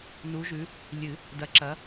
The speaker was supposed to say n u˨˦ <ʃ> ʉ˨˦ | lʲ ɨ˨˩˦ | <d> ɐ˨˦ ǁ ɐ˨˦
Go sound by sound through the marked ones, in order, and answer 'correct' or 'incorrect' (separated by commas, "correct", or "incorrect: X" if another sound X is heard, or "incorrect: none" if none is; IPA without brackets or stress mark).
incorrect: ʒ, correct